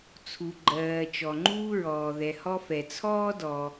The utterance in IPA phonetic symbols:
t͡sʰ u˩ ɡ͡ǃ ɜː˩ t͡ʃ ɔ˩ ŋ͡ǃ uː˥ ɹ ɔː˩ ð ɛ˩ h ɔ˥ f ɛ˩ t͡sʰ ɔː˥ d ɔ˩

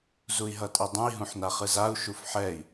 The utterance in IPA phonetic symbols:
z u i̯ ɦ ʌ tʼ i dˤ ũ i̯ ɦ ũ ħ n a χ ɯ z a u̯ ʃ u f ħ ɛ i̯

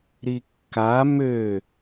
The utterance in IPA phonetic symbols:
ɾ i kː a m ø

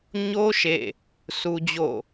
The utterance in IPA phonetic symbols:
ɲ o˦ ʃ ḛ˦˨ | s u˦ d͡ʑ o̰˦˨

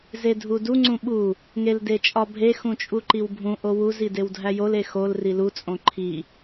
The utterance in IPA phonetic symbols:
z e dʱ u d u ŋ͡ǀ ũ ɓ u | ŋ e l d e t͡ʃʼ ɒ bʱ e x ũ t͡ʃʼ u ǃ i w bʱ ũ ʔ o w u z i d e w dʱ æ j o l e x o l r i l u t͡sʼ õ ǃʰ i

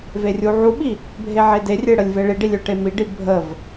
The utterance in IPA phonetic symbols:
v e rʲ u ʕ u ɓ i | bʱ e ʕ e d e rʲ e ɽ ə lʲ v e ɭ i ɖ i lʲ ø ʈ e m i ɖ i bʱ ə v

